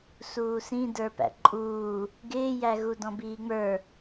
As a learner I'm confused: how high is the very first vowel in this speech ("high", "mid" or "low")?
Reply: high